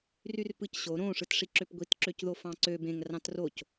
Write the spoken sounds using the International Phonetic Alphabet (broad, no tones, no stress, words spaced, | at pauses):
ryrpɯcɕo ɾõ ʂɯtʂiǁøpɡʷit ǁøcðofɑ̃ǀø bẽŋ rɑ̃troc